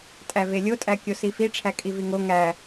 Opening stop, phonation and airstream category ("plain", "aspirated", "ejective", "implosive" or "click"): ejective